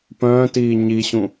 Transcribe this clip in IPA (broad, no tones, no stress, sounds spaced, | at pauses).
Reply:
p œ̃ː t iː ɲ i ɕ ũ